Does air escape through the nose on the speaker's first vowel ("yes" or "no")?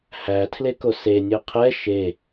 no